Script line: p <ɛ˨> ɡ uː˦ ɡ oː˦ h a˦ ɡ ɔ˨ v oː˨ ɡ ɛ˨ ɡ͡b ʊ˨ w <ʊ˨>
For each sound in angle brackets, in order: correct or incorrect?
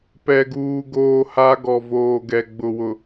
incorrect: ɛ˦, correct

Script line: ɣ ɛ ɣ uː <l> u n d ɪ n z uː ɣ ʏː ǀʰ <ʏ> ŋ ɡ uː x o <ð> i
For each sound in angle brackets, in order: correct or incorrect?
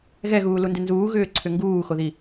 correct, correct, correct

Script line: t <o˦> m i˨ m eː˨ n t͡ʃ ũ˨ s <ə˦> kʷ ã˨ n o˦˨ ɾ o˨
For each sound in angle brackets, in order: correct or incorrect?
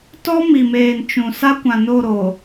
incorrect: ɔ˦, incorrect: a˦

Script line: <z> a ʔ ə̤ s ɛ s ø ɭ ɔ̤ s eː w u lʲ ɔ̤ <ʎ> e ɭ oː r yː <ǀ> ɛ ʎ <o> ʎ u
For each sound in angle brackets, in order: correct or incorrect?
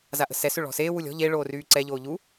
correct, correct, correct, incorrect: oː

